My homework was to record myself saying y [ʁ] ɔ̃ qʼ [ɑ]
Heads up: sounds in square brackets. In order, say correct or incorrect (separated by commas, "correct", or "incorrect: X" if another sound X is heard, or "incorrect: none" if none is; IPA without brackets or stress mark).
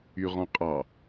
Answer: correct, correct